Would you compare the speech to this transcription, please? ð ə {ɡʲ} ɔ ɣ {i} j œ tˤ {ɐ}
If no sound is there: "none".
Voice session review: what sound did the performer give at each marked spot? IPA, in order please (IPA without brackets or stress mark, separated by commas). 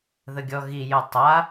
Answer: ɡʲ, i, a